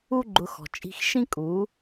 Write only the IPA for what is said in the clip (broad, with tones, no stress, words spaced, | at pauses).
u˦ ɡ͡ǃʊ˧xɔ̤˨ t͡ʃʼi̤˧xʃĩ˦ kʼu˨˦